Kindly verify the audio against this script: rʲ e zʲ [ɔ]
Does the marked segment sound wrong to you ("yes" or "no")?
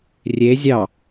yes